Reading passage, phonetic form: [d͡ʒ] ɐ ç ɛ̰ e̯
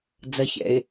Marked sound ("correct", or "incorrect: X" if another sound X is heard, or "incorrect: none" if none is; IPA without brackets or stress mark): incorrect: d͡z